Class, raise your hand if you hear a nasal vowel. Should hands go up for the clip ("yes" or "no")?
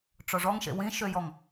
yes